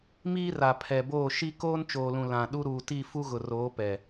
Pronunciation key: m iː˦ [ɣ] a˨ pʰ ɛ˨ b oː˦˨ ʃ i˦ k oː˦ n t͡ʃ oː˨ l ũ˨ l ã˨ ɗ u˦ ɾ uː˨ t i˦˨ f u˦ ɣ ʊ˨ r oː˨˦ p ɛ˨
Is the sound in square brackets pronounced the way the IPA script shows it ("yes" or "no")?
no